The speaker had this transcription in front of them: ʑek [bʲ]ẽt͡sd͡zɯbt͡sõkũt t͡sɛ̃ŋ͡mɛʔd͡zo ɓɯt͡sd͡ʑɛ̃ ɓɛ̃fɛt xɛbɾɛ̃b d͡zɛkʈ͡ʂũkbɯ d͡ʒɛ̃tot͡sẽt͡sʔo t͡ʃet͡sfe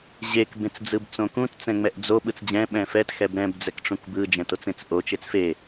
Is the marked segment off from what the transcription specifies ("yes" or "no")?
yes